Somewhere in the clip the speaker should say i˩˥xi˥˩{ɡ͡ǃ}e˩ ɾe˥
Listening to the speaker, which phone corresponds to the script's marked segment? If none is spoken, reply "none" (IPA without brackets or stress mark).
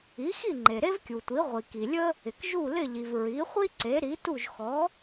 ŋ͡ǃ